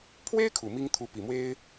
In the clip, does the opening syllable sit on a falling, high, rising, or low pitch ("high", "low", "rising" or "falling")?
high